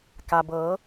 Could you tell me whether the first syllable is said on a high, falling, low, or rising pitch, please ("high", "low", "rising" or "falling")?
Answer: low